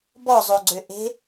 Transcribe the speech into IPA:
b ɔ zˤ o ɡ͡ǀ ø ʔ e̤

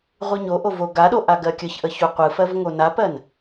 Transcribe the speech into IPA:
ʁʷ ɯ ɲ o ʔ o v o ɡ a ɗ o ʔ a ɡ ɜ kʲ ə ç ʔ ə ç u qʷ ɯ f ɜ v ŋ o n a p ɜ n

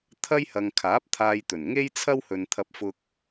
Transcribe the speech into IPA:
t̪ʰ ɐ˥ j h ɐ˨ ŋ kʰ aː˨˥ p̚ t̪ʰ aː˧ j t̪ ɵ˨˩ n ŋ e˥ j t͡sʰ ɐ˥ w h ɵ˨ n t̪ʰ ɐ˧ p̚ f ʊ˧ k̚

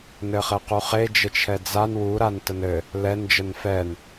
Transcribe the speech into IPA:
n ɘ χ ɘ q u χ e d͡ʒ ɘ t͡ʃʰ ɛ d͡z a n w u ɾ a n t ə n ɘ | l ɛ n d͡ʒ ə n f ɛ n

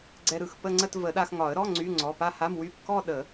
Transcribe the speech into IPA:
ɡ͡ǀ ɛ˧ ɾ ɯ˩˧˩ x p ə˥˧ ŋ͡ǀ ə˥˧ t v ə˨˩˦ ɗ a˧ x ŋ ɒ˨˩˦ ə̯ ɾ ɔ˧˥˧ ŋ͡ǀ y˧˥˧ ŋ͡ǀ ɔ˩˧˩ p a˥˧ h a˧˥˧ m w y˧˥˧ p k ɔ˥˧ ɗ ə˨˩˦

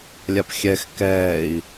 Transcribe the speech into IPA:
lʲ a p xʲ ɛ x k ɛː i̯

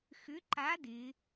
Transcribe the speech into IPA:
x ʏ˧˥ ǃ a˧˥ d ɪ˧˥

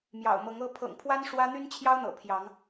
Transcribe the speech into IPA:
m j ɑ̰˨˩ ʊ̯ m ɤ˨˦ ŋ ɤ˦ pʰ ɤ̰˨˩ ŋ pʰ w a˦ n ʂ w ä˦ n̪ y˦ n t͡ɕʰ j ɑ˦ ʊ̯ n̪ ɤ̰˨˩ pʰ j ɑ˨˦ ŋ

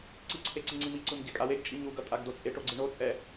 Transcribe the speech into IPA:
ǀ i ǀʰ e ǀ i ŋ͡ǀ i m i ǀ ɯ m ɟ ɛ kʼ a w e ɡ t͡ʃʼ i ɲ u ɡ ʌ tʼ a ɡ d o t͡sʼ e ʈ o ɡ͡ǀ ɯ ɳ o t͡sʼ ɛ

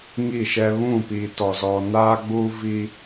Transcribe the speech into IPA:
ŋ i˦˨ ʃ ɛ˦ β ũ˦˨ p iː˨ t ɔ˨ z ɔ˨ n aː˦ ɡ͡b u˦ v i˦

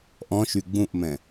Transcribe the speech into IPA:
ʔ ɔ̃ ʃ y ɡ͡b ũ ʔ m ɛ̃

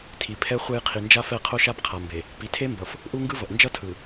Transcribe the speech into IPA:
tʰ i˨ pʰ ɛ˦ χʷ e˦ j qʰ i˨ n d͡ʒ a˦ f ɛ˦˨ qʰ o˦ ʃ a˦ b qʰ a˨ m b e˨ | p i˨ tʰ e˦ m b ʌ˨ f | ʔ u˦ ŋ ɡ ɯ˦ v ʌ˨ ʔ n d͡ʒ ʌ˦ tʰ ɯ˨

